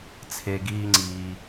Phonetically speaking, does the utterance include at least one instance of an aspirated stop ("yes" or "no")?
yes